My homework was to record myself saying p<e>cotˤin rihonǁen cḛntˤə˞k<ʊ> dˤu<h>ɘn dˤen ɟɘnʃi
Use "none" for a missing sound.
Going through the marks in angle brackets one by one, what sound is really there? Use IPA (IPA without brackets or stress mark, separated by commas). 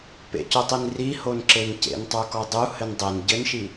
ḛ, ɔ, h